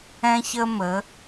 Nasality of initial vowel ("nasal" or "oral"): nasal